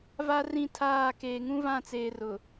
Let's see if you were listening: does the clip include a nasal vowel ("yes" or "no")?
yes